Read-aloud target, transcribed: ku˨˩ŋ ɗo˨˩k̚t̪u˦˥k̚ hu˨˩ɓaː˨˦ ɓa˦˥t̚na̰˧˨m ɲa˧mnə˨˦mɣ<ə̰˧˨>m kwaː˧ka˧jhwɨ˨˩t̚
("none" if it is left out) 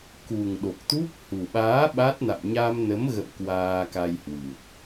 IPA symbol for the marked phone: ə̰˧˨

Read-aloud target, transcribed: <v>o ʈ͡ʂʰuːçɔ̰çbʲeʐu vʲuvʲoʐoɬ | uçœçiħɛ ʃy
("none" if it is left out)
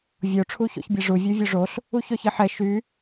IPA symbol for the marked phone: vʲ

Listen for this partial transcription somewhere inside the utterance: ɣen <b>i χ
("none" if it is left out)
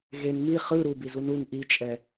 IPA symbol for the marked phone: m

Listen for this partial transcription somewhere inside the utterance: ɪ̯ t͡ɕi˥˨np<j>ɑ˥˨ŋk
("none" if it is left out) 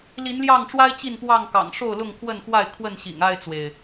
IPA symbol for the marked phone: w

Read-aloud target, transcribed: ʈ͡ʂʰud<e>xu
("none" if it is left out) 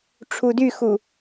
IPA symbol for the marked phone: y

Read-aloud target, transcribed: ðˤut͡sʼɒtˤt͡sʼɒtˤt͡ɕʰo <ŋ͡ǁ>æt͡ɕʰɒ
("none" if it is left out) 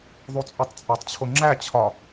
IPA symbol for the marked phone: ŋ͡ǁ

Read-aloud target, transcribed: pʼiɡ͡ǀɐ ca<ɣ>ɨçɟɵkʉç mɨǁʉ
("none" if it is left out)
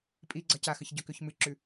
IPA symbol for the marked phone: x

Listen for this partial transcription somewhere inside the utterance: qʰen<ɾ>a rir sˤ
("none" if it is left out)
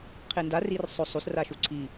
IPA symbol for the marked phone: d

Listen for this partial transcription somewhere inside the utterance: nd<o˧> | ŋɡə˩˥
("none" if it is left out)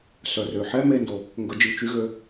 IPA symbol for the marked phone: o˩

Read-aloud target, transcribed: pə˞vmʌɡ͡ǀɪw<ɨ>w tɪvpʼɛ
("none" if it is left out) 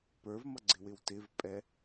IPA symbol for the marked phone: ɪ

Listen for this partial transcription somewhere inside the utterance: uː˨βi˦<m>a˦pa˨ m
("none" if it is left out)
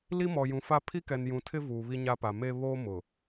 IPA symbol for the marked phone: ɲ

